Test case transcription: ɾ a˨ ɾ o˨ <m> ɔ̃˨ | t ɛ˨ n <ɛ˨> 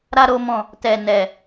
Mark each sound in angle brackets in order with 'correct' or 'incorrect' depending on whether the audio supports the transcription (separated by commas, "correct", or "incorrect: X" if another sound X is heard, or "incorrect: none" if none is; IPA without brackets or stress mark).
correct, correct